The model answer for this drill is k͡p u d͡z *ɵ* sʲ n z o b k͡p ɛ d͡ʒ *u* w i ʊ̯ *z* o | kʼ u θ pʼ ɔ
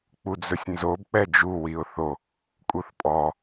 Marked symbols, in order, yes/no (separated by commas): yes, yes, no